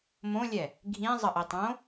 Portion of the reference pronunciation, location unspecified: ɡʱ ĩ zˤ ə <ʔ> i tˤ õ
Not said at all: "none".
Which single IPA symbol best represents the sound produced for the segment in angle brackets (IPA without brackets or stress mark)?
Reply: ʔ